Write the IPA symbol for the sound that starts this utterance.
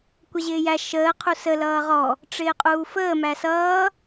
kʷ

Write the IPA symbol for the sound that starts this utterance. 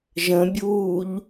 ʒ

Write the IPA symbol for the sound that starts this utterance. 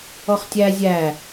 ɔ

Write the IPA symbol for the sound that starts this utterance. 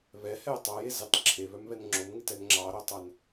β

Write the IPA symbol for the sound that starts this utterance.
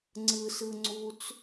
ŋ͡ǀ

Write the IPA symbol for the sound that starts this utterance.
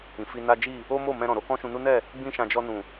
ĩ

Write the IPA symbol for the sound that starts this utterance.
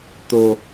t̪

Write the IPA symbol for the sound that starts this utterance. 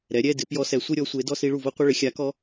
ɾ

